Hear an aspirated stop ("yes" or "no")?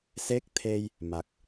yes